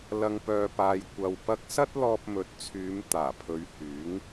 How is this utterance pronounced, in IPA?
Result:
lɐ˨ŋpœː˨paː˨j kʷɐ˨w pɐ˧k̚sɐ˥t̚ lɔː˧p̚mɵ˨˥t̚t͡sʰyː˨˧m t̪aː˨˩pʰɵ˨˧ɥ hyː˨˥ŋ

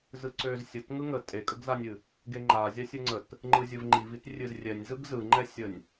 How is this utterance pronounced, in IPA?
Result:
zɯǀøz sʲət ŋɯŋə tʼekʼəɡzanʲɨ | ɡeŋ͡ǃa zʲasʲɯŋ͡ǀət | ŋ͡ǃɯzʲɯvŋ͡ǃivit rʲɨzrʲɛnʲ zɯɡzɯŋ͡ǃɛsʲənʲ

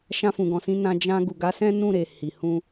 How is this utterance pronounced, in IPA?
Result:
ʃã˧fũ˨ɡɔ̃˨sĩ˧ nã˧ d͡ʒã˧ ɡu˨ɡa˨˦ sɛ̃˦ nũ˦˨ɾe˨ hi˨hũ˧

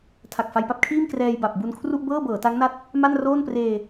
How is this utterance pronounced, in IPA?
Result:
tʰa˨˩k̚fa˧jpa˥˩p̚kʰiː˥˩m krɛː˧jba˨˩p̚ bu˧nkʰru˥˩ʔbɤː˥˩ bɤː˩˦ta˦˥ŋna˦˥t̚ | ma˥˩n roː˥˩npreː˧

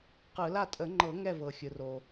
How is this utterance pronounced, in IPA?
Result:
qɯ˨˩˦la˥˩ tʼə˨˩˦ŋ͡ǃɤ˨˩˦ ŋɛ˥˩vɤ˩ xʲɯ˩ro˩

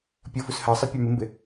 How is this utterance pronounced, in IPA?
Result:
pʲʌ fushɜsˤʌ pʲɑmɪmbɪ

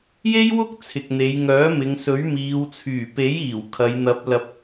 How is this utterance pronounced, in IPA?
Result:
je˥jwʊ˥k̚ t͡sʰɪ˨k̚n̪e˨˧jŋœː˨˥mɪ˨˧ŋ sɵ˨˥ɥmiː˨˧wt͡sʰyː˨˩ pe˨˥jiː˨˩w kʰɐ˨˧jn̪ɐ˨˥p̚lɐ˨p̚

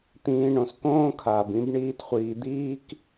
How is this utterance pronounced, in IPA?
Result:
t̪ĩː˨ɳõ˩skõː˥ kʰaː˩bĩ˦b ɳiː˦t χʷiː˨d̪iː˥k

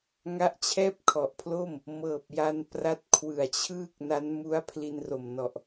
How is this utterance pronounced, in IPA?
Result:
ŋa˦˥ʔt͡ɕʰɛː˥˩p̚kʰɔ˨˩ʔpʰlo˥˩m | mɤː˨˩p̚ja˧n pra˦˥t̚kʰwɯ˨˩a̯t͡ɕʰɯː˥˩k̚na˦˥n mu˦˥a̯pʰli˧nro˨˩mnɔ˨˩ʔ

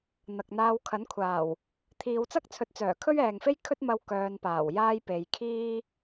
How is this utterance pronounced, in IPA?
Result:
n̪ɐ˨k̚n̪aː˧w kʰɐ˨˥nkʷʰaː˨˩w | t̪ʰiː˨˧wt͡sɐ˥k̚t͡sʰɵ˨˥t̚ t͡sœː˨˩kʰɵ˥ɥɛː˨ŋfe˥j kʰɵ˥t̚mɐ˧w kœː˨˧npaː˨˩w jaː˥j pe˨˧jkʰiː˥

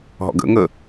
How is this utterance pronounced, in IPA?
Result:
ɦɔ̰ɡə̰ ŋə

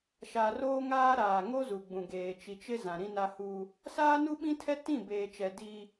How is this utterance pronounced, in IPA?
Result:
ʃa˨roː˦ŋaː˦ ɾaː˨ŋo˦zu˨ɡ͡bũ˨ ɡeː˨t͡ʃi˨t͡ʃɪ˦ zã˨ɾĩ˦na˦ hu˦ | saː˦nu˦ɓĩ˦tʰɛ˦ tĩ˦˨beː˨t͡ʃɛ˨ di˦

